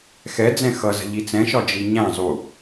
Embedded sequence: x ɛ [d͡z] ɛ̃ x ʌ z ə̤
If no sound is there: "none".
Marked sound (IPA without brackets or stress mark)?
d͡z